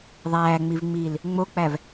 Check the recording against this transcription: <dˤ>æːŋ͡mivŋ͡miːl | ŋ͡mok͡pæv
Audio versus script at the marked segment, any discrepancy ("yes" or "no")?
yes